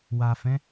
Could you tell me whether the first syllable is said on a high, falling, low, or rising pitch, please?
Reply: low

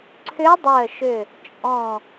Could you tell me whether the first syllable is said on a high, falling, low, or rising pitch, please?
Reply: rising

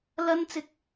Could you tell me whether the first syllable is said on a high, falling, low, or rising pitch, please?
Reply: high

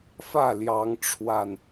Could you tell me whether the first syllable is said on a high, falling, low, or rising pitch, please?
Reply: falling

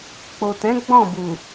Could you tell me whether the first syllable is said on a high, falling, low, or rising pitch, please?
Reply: low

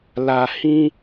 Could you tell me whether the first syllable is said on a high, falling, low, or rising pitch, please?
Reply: low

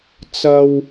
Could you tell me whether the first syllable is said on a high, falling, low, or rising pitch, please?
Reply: low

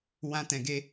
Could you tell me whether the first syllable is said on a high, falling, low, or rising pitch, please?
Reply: high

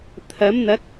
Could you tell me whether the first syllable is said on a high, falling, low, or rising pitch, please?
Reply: rising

